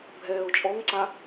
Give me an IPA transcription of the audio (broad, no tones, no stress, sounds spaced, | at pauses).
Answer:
bʱ ɛː ʊ̯ t͡ʃʼ ɔ ŋ ǀ a